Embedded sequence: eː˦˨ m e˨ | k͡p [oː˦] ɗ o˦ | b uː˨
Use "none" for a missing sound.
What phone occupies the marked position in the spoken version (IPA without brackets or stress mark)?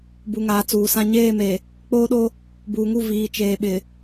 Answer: oː˦